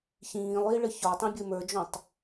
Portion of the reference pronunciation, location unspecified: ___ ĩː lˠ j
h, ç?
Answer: ç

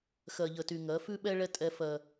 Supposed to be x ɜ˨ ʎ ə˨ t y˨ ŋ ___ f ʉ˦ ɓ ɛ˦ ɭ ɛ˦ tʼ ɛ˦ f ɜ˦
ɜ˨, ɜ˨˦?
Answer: ɜ˨˦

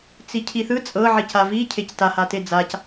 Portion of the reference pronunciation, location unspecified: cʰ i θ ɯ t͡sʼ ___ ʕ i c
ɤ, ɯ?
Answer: ɤ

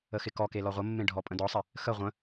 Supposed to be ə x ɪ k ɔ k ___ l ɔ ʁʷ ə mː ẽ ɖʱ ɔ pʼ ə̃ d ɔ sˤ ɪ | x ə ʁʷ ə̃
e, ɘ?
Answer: e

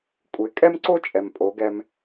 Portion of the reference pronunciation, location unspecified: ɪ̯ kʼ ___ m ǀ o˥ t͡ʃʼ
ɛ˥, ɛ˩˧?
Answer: ɛ˥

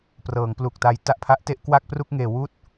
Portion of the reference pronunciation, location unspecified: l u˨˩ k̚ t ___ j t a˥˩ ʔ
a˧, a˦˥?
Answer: a˧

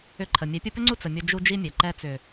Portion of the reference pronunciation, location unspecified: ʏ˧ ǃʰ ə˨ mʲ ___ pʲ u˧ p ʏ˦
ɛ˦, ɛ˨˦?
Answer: ɛ˨˦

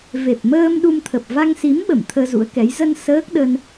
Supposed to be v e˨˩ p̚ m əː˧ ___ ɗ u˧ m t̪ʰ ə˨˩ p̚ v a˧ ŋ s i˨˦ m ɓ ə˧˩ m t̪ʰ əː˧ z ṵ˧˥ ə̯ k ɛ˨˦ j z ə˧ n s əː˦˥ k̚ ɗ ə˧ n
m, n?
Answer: m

